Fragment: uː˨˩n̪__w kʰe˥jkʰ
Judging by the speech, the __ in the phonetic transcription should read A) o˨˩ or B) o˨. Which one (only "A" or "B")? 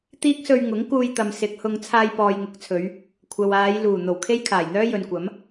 A